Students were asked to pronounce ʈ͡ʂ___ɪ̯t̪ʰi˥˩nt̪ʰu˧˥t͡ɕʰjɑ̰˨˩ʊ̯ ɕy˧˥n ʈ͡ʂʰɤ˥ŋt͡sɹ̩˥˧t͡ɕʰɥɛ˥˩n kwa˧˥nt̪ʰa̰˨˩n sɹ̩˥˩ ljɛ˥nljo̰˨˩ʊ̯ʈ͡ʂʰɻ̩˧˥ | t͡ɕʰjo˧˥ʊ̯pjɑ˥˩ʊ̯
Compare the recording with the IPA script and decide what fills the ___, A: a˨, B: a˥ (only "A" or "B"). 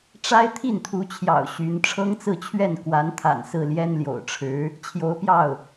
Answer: B